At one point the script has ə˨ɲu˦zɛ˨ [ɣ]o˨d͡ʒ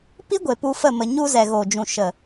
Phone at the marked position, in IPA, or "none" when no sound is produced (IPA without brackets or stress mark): ɣ